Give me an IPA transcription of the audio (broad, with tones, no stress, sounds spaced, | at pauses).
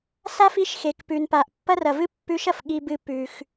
s a˥ f i˧˥ ʃ x e˩ k p ʉ˩ n p a˩ ʔ pː ɐ˥ r ɐ˩ v ɨ˥ pː ʉ˧˥ ʃ ɐ˩ f ɠ i˧ b ɨ˧ p ʉ˩ x